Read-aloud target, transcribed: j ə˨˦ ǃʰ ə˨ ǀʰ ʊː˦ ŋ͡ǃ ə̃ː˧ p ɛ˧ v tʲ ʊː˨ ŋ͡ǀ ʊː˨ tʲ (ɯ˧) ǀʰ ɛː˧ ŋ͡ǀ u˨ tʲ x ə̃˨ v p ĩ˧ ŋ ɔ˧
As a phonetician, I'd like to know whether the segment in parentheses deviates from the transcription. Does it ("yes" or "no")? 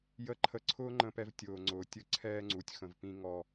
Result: no